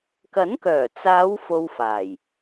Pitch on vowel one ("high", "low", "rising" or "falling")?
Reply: rising